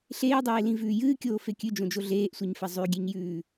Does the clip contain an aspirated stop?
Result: no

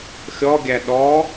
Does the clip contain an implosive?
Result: yes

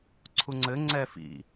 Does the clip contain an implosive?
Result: no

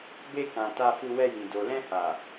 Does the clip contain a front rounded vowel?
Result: no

